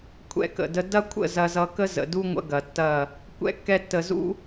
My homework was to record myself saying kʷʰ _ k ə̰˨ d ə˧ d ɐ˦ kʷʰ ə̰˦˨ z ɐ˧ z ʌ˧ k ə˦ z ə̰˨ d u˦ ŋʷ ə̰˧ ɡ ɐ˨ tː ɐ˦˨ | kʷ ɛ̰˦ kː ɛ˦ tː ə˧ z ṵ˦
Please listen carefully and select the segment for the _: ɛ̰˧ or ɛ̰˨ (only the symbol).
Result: ɛ̰˧